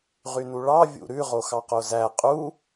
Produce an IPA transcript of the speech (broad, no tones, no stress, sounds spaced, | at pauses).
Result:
ʁ y n u ɭ ɑ vʲ ṵ ɾ ʉ ʁ o x ɑ q o z æ qʼ u